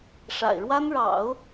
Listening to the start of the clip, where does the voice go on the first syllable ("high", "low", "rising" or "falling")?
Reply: low